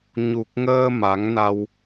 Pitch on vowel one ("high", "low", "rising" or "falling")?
low